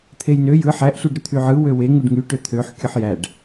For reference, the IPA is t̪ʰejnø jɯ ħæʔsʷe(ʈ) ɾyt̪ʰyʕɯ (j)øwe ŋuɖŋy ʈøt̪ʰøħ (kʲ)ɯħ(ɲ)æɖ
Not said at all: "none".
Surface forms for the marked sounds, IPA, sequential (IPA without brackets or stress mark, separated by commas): ɖ, w, kʲ, j